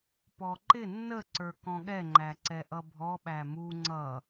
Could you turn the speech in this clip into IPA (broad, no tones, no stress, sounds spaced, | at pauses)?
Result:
p ɔ ǃ ɪ nː ə ǀ ə˞ k ɔ̃ ɠ ɛ ŋ͡ǃ æ ǀ ɛ ʔ ʌ bʱ ɔ ɓ æ m u ŋ͡ǀ ʌ